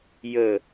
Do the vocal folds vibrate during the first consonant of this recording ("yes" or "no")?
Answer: yes